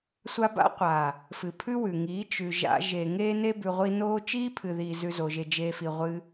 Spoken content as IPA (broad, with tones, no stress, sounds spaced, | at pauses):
sʷ a˧ b a̰˦ qʷ a˨ | f ɨ˨ pʰ ʉ˦ w ʉ˨ ŋ iː˨˦ t͡ʃ ʉ˨ ʒ a̰˧ ʒ e˨ ŋ eː˦ n e˦ b ʉ˧ ʁʷ i˦ n oː˦ t͡ʃ iː˦ pʰ ɨ˨ ð iː˨ z ʉ˦ z o˧ ʒ e˧ d͡ʒ eː˦ f i˨ ʁʷ ɨ˧